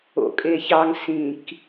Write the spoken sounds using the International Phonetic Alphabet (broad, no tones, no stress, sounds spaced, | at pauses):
o̰ kʼ e ç ɑ ŋ s ĩ k